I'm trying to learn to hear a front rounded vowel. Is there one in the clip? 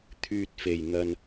yes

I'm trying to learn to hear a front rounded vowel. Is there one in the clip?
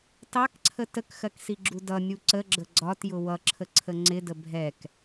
no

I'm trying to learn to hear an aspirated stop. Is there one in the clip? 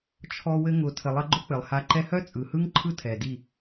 yes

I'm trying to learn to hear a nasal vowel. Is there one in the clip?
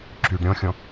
yes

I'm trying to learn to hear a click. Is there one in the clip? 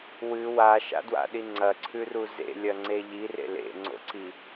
yes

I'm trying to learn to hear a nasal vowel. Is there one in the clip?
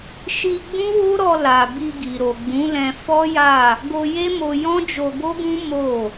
yes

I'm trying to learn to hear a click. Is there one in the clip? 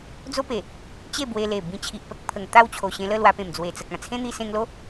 no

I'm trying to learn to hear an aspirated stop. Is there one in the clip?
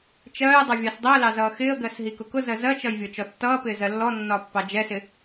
no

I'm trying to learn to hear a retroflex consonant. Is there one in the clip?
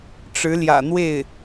yes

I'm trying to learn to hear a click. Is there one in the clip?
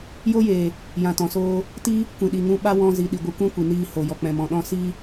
no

